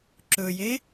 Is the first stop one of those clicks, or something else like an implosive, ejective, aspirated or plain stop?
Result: click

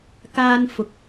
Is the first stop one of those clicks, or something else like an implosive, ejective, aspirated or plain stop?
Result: plain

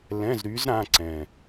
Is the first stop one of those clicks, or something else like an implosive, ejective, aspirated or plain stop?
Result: click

